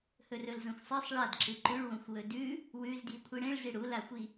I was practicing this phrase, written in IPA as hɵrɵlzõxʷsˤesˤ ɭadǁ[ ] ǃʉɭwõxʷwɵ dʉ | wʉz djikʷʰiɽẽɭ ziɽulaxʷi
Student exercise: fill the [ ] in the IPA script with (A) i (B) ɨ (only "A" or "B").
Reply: B